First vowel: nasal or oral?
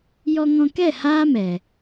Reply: oral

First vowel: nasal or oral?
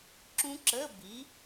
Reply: nasal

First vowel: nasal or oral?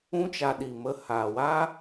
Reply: nasal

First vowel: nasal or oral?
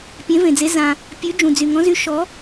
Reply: nasal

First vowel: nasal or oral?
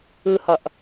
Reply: oral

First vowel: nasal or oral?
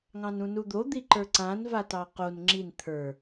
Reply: nasal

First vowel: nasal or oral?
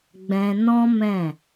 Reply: nasal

